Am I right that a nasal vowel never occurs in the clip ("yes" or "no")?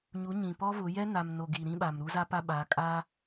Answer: no